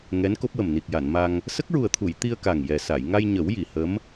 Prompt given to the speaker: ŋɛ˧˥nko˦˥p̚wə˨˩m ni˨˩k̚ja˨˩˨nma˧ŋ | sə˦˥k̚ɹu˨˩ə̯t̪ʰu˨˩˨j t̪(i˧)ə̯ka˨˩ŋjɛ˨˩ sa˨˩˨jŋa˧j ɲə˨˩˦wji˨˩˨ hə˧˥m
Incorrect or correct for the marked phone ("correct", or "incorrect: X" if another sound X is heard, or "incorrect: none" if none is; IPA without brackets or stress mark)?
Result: correct